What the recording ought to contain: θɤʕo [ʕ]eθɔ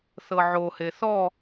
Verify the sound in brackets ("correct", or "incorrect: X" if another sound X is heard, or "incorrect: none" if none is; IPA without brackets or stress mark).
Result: incorrect: h